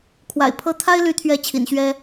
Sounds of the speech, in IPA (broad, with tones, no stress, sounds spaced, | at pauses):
kʰ w a̰˨˩ ɪ̯ pʰ ɤ˥˩ t̪ʰ a˥ ɪ̯ l y˧˥ t̪ʰ ɥ ɛ˧˥ t͡ɕʰ ḭ˨˩ n ɕ ɥ ɛ˥